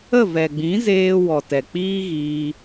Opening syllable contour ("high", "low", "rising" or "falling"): falling